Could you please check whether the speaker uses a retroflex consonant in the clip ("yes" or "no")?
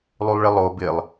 yes